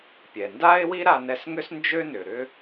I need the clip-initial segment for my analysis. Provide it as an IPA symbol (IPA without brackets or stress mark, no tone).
pʲ